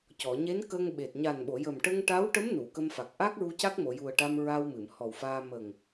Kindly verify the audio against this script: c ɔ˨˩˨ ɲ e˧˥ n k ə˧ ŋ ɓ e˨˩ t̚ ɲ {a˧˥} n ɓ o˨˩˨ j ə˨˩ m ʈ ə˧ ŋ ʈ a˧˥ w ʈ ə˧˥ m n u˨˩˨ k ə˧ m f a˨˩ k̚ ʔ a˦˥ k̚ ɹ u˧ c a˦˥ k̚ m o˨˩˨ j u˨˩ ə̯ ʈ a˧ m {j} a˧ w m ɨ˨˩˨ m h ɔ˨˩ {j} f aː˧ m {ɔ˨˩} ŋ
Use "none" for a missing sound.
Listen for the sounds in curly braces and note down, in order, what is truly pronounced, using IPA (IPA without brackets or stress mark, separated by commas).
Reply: a˨˩, ɹ, w, ə˨˩